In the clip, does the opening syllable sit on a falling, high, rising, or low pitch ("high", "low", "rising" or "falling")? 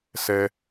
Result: high